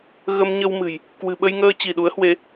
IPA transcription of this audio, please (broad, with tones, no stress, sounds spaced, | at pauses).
ɣ ə˧ m ɲ ə˧ w m ɨ̤˨˩ j | k w ɨ̤˨˩ ɓ ə˧ j ŋ əː˧ t͡ɕ i˧˩ ɗ u˨˦ ə̯ h w e˨˦